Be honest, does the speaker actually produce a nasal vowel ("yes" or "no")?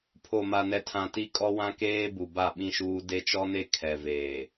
yes